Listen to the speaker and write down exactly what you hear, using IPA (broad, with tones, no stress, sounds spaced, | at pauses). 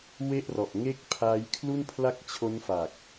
w e˥˩ ʔ r ɔ˨˩ ʔ ŋ e˥˩ k̚ pʰ a˦˥ j kʰ l u˥˩ n pʰ l a˥˩ k̚ t͡ɕʰ o˦˥ n f a˨˩ k̚